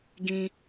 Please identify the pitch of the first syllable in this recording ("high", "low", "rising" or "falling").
low